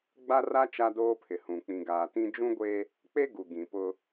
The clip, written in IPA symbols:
ɡ͡ba˦ra˦ t͡ʃa˦doː˦pʰɪ˨hũ˨ k͡pĩ˨ɡaː˨tĩ˦ d͡ʒũ˦ɡʷe˦ | k͡pe˦ ɡu˨ ɡĩ˨pʊ˦

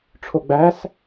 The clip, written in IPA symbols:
ʈ͡ʂʰoɡ͡bæs

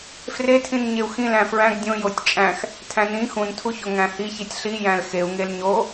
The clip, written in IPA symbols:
fretʰĩn ɲeu̯xĩ læ̃fɹæ̃ɡ dʲõ jotʲt͡ʃʼæ̃x | tʰæ̃nĩ xũntʰuço ŋæ̃hiçitʲ ɬijæ̃l xeu̯ŋel ɲo

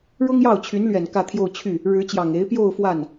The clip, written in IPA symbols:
ɻʊ˥ŋjɑ˥˩ʊ̯ t͡ɕʰy˧˥nlɥɛ˨˩n kä˥˧t̪ʰjo˥˧ʊ̯t͡ɕʰy˥˩ | ɻɻ̩˧˥t͡ɕjɑ˨˩ŋe˧˥ɪ̯ pjo˥˧ʊ̯ fwa˥˩n

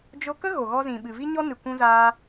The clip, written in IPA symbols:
d͡ʒo˧kə˦ ɣo˨ɣɔ˧zĩ˨ ɓɨ˨vi˦ɲɔ˦ nɨ˨kʷũ˧zaː˧

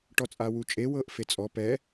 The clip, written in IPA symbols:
ʈɔt͡sʼawut͡ʃʼe wɤʔfet͡sʼɔ pɛ

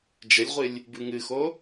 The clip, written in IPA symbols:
d͡ʒəlʲʁʷɨlʲ | bɨŋɨxo

